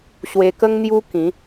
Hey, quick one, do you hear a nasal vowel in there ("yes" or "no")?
yes